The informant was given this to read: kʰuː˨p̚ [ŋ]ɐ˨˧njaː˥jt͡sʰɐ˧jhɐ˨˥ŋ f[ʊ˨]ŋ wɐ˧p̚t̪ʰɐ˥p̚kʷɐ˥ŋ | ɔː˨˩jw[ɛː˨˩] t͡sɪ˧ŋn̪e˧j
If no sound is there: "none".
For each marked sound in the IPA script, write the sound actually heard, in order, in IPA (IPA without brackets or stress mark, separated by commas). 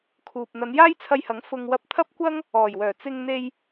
n̪, ʊ˧, œː˨˩